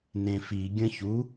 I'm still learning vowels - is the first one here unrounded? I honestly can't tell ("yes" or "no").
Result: yes